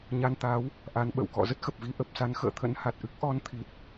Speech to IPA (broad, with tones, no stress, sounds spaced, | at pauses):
ɲ a˧ n t̪ a˨˦ w | ʔ a˨˦ n ɓ ə̰˧˨ w k ɔ̰˧˨ z ə˦˥ t̚ x ə˨˩ p̚ v i˧ ʔ ə˨˩ p̚ s a˨˦ n x ə̰ː˧˨ t̪ʰ ə̰˧˥ n h a˨˩ t̚ ʔ ɨ˦˥ k̚ ʔ ɔ˧ n t̪ʰ i˨˩ t̚